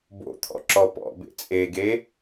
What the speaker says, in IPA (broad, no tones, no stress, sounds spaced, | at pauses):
b o̰ t̪ʰ ɔ̰ ǁ ɔ p ɔ̰ b ḛ t͡sʼ e ɡ e